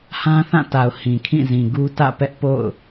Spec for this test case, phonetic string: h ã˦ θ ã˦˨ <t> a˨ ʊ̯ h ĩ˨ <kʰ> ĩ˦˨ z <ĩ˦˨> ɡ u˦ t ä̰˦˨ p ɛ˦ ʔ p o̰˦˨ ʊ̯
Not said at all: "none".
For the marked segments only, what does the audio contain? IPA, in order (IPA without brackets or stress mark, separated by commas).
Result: t, kʰ, ĩ˨